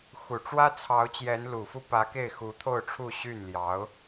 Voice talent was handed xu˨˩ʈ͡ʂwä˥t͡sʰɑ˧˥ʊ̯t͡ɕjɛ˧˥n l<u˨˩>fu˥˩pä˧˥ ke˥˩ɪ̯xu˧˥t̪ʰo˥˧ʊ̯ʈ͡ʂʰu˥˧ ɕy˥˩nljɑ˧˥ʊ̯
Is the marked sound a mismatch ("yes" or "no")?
no